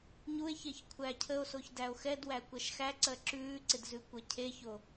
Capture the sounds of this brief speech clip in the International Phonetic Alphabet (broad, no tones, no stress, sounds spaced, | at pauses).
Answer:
ɲ u e̯ ç e ç kʷʰ æ cʰ ə o̯ s o ç d æ o̯ x ɛ d w æ kʷ æ ʃ x æ ǀ ɜ ǁ ʉː ǀ ɪ d z ʉ kʷ ɜ cʰ e ç o